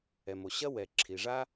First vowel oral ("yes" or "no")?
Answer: yes